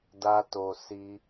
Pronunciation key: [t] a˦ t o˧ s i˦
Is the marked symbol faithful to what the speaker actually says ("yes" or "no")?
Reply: no